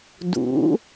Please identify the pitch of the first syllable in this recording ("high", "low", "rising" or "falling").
rising